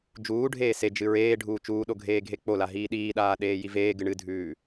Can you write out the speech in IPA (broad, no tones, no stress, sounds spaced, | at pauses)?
d͡ʒ uː ɖʱ eː s e d͡ʒ ɨ ɹ eː ɖʱ uː t͡ʃ uː ɗ o ɡʱ eː ɡʱ e k͡p o l a ɦ iː ɗ iː ɗ aː ɗ eː j i v eː ɡ ɨ ɳ ɨ dʱ ʉː